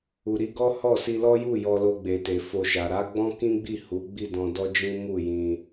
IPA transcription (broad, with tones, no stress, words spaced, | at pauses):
u˨ɾi˨˦ɡɔ˦ hɔ˦˨si˧ lɔ˦ju˦˨ jɔ˧lo˧ɡ͡be˨te˨ fo˧ʃa˨ ɾa˨˦ ɡ͡bɔ̃˦kĩ˦ɡ͡bi˦˨ hu˨˦ɡ͡bi˦˨dɔ̃˧ dɔ˦d͡ʒĩ˦ mu˦˨jĩ˧